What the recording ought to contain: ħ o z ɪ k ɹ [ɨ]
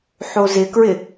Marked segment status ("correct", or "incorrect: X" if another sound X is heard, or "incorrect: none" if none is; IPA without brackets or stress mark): incorrect: ɪ